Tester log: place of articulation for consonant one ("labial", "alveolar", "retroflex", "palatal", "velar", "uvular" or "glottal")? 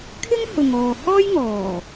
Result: velar